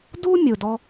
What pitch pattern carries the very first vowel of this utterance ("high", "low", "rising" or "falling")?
high